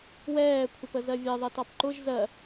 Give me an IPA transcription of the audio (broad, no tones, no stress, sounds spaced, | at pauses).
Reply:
w ɛː kʷʰ ɪ p ə z ɜ vʲ ɛ ðˤ ɛ t ɑ p ǃ ʊ ʒ z ɜ